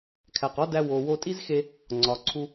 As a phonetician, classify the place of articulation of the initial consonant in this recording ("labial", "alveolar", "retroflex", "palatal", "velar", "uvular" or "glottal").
velar